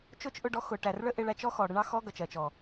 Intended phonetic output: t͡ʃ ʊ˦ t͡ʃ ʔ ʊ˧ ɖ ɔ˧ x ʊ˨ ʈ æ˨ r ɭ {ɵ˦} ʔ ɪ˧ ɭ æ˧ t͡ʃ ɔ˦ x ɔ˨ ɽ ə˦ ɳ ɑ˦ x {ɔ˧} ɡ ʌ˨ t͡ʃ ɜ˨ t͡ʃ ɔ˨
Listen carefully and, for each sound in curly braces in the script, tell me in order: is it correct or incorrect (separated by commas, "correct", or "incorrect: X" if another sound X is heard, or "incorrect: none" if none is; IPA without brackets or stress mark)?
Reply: incorrect: ə˦, incorrect: ɔ˦